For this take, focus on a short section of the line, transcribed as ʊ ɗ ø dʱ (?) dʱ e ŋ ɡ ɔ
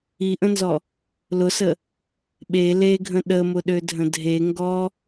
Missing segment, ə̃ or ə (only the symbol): ə̃